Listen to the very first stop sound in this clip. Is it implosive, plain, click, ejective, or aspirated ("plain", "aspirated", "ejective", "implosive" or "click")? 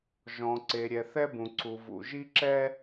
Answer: click